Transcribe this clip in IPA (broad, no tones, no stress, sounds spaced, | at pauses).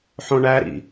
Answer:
ħ õ ɳ æ ɾ ḭ